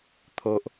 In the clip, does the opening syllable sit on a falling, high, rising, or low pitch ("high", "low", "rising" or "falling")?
low